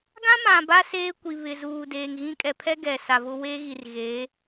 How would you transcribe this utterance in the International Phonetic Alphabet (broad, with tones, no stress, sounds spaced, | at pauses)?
ɡ ã˦ m ã˨ b a˦ s eː˦ kʷ i˨ β ɪ˨ z uː˨ d eː˨ ŋ ɣ ĩ˦ kʼ ɛ˨ pʰ ɛ˦ ɡ ɛ˨ s a˨ v ʊ˦ w e˦ ɣ i˨ r ɣ e˨˦